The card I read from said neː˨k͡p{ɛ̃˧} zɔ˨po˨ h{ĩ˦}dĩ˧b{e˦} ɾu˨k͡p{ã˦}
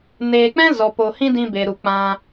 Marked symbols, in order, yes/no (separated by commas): no, yes, no, no